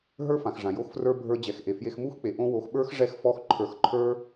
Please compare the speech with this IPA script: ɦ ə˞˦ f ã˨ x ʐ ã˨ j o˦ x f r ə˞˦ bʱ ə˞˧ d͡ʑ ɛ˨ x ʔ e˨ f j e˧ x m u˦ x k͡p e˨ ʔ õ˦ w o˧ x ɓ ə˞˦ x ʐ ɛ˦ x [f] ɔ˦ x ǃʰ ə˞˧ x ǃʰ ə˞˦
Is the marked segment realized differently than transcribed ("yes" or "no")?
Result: no